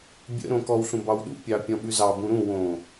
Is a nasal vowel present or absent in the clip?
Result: present